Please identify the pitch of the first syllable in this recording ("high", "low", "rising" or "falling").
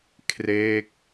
falling